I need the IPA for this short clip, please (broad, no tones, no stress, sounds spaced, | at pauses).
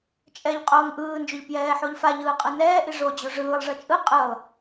t͡ʃʼ ɛ ʎ qʼ oː ŋ ʔ ɯː n d͡ʒ o ʎ p j ɛː ħ o ʎ f a ʎ ɯː qʼ ɯ n ɛː ʔ i ʐ o d͡ʑ o ʐ ɯː lˠ ʐ ʌ t͡ʃʼ ɯ qʼ ɯ lˠ